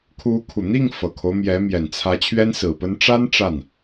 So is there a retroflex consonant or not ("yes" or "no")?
yes